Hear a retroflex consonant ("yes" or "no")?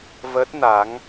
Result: no